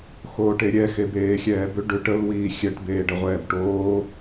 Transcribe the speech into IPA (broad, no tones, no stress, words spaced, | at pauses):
xoːʈeɾʲɛ xebeːxʲɛːbʏ ɖʏʈ əl wiːxʲɛʈ beːɖəʁʷɛːbʈoː